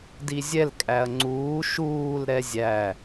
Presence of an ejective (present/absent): present